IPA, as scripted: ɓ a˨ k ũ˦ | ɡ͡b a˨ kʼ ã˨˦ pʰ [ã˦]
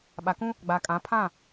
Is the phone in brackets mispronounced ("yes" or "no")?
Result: yes